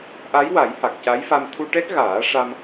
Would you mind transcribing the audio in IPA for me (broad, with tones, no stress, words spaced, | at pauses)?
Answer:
ʔa˧˥jwa˨˩˦j ha˨˩k̚ca˧˥jfa˧m t̪ʰu˧ʈɛ˦˥k̚ɣaː˨˩˦ ʂa˧m